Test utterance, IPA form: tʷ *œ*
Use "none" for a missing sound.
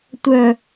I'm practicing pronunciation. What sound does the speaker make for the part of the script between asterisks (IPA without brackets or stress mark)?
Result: œ